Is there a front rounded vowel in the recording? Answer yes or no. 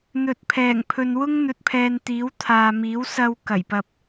no